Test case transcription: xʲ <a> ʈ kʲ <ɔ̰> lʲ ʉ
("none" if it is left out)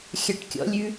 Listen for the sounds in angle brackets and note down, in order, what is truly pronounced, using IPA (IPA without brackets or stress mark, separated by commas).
a, ɔ̰